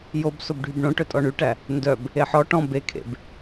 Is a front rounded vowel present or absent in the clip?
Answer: present